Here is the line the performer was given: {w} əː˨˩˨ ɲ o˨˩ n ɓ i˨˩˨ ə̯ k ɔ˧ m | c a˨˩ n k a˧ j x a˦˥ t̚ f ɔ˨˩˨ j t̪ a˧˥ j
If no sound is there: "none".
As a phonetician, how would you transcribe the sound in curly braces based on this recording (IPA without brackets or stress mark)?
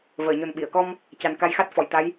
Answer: v